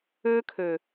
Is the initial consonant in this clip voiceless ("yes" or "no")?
yes